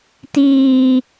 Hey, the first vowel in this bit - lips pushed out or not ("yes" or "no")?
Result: no